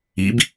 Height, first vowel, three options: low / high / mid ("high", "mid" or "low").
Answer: high